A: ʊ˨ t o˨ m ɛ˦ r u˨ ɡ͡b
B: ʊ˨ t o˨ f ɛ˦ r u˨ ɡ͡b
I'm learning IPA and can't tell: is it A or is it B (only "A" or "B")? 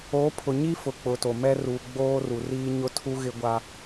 A